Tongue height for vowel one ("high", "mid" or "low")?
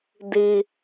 high